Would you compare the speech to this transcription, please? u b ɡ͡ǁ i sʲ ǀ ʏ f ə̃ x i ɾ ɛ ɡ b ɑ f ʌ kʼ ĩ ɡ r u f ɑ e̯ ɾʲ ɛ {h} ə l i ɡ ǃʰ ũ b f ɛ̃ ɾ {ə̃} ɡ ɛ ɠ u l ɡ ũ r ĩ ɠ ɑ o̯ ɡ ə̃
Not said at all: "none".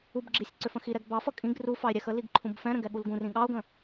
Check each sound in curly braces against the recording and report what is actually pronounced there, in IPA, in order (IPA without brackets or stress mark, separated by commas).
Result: x, ə̃